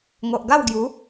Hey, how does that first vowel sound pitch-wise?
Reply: low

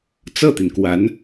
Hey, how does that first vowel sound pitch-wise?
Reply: falling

